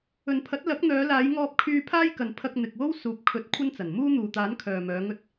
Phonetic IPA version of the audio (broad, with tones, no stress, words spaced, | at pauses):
ɵ˨npʰɐ˨˥t̚lɐ˨˥k̚ n̪œː˨˧laː˨˧j ŋɔː˧p̚kʰyː˧ pʰaː˥jkɐ˨n pʰɐ˧k̚n̪ɪ˨k̚wo˥w suː˨p̚kʰɵ˨˥t̚ kʷʰɐ˥nt͡sɐ˨˩n muː˥n̪uː˨t̪aː˨˥n kʰœː˨mœː˨˧ŋɵ˧t̚